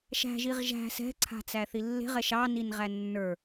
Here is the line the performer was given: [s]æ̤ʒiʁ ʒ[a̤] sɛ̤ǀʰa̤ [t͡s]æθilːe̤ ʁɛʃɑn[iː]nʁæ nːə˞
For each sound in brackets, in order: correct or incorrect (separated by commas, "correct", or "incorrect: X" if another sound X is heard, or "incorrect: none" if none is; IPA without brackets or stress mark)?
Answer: incorrect: ʃ, incorrect: æ̤, correct, incorrect: i